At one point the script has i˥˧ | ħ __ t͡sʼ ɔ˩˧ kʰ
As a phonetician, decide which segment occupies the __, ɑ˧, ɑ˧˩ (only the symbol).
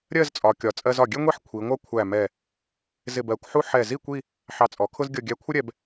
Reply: ɑ˧